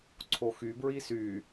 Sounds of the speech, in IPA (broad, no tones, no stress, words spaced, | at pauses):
ǀʰoxybɹi sy